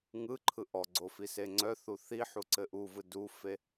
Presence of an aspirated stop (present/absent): present